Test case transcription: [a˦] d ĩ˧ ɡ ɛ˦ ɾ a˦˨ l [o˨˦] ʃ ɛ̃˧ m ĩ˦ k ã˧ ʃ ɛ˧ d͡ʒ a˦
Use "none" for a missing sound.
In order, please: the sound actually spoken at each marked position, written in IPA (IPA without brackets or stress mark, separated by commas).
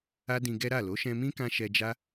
a˦, o˨˦